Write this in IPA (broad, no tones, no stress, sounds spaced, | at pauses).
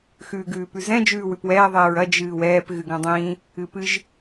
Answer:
x ʉː ɡ ʉː p ʉ z ɛ̃ d͡ʒ ʉː w ʉ p w ɛː ðˤ ɛː ɹ ɐ d͡ʒ ɨː w ɛː p ɣ ɨ ɡ ɐ̃ dˤ ĩː | ɨ p ɨ ʒ